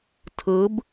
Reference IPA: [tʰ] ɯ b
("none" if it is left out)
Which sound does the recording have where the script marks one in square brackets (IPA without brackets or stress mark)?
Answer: tʰ